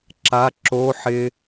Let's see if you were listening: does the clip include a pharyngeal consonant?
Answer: yes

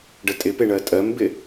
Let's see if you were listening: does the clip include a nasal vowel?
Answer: no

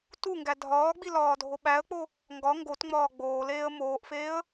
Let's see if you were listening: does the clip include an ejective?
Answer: no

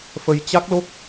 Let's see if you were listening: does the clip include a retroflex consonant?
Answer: no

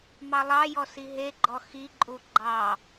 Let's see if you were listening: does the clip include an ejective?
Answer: yes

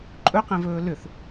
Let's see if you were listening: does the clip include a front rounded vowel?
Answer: yes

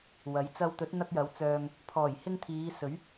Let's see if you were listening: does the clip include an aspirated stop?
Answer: yes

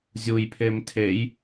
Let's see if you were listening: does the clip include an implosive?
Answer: no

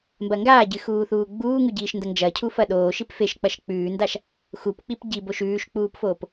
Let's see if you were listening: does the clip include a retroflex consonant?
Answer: no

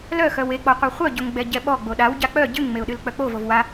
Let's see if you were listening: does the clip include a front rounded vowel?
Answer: yes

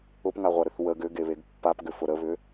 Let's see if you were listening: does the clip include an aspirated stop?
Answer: no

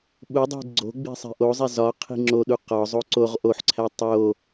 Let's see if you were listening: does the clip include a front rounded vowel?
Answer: no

